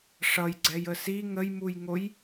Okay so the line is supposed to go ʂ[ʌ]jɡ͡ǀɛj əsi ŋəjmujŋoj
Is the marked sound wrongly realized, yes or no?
no